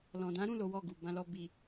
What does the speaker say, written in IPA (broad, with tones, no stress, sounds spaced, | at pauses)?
l ɔ̃˨ d ã˨˦ ɾ ũ˦˨ l o˨˦ w ɔ˦˨ ɡ u˨ b ã˧ l ɔ˧ b i˨